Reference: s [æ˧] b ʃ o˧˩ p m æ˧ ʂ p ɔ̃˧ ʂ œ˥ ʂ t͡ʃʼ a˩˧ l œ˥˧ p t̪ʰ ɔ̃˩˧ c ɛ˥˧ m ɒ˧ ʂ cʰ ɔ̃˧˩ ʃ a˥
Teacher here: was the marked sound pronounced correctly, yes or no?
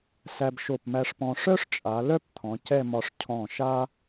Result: yes